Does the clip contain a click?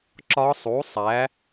yes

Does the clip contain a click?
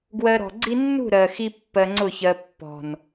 yes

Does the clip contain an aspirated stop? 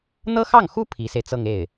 yes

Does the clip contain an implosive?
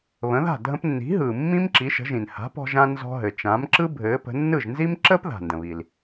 no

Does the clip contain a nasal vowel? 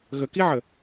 no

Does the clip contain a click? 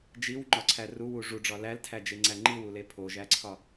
yes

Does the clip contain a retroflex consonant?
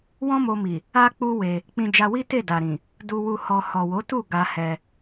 no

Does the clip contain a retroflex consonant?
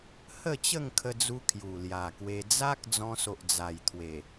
no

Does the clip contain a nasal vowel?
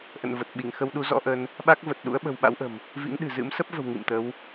no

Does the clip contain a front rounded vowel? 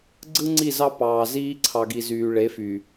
yes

